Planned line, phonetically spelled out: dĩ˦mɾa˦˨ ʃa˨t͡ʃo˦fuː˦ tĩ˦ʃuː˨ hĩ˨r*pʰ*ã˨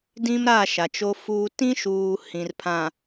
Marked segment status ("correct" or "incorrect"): correct